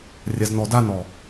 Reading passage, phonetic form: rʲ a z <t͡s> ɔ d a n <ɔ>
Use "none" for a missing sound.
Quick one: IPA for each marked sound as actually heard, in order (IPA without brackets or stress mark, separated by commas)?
n, ɔ